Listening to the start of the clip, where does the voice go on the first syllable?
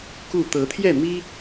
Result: falling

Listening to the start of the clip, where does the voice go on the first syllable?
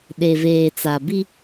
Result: low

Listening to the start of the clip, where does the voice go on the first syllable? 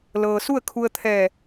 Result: low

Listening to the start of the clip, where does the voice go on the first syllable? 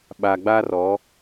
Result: low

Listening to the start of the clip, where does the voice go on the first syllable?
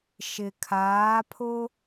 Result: low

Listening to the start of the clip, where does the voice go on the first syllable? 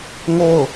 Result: falling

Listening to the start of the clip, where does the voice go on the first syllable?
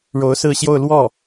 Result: rising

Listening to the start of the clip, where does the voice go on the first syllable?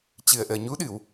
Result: low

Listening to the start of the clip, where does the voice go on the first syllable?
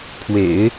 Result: low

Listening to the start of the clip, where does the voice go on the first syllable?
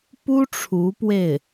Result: high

